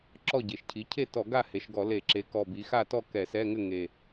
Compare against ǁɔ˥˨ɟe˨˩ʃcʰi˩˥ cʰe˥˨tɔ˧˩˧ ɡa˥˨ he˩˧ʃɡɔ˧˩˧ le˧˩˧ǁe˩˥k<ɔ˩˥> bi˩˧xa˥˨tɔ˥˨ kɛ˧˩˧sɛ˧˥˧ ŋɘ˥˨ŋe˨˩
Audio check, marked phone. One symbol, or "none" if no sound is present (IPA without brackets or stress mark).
ɔ˨˩